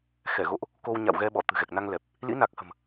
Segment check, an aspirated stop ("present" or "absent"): absent